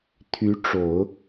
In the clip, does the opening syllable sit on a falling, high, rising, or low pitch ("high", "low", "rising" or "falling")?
rising